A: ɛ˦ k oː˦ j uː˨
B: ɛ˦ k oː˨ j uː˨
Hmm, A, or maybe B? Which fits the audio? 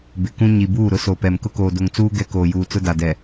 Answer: B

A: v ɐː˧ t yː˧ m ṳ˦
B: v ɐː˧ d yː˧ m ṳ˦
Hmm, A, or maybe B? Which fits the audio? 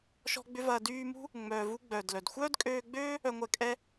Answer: B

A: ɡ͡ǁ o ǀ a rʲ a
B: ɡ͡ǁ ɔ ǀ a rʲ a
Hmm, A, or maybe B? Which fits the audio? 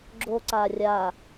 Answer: A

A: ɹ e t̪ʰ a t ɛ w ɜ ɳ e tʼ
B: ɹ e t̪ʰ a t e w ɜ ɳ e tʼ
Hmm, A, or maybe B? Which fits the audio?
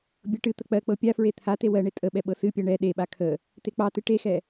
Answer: B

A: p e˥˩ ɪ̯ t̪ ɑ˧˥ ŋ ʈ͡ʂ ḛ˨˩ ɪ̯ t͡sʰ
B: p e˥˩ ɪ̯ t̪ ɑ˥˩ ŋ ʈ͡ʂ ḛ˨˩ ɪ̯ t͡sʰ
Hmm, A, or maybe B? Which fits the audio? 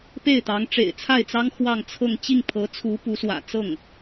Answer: A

